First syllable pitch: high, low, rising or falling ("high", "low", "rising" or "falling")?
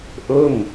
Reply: falling